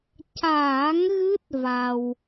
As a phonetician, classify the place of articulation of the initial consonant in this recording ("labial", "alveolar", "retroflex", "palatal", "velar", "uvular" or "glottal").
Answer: palatal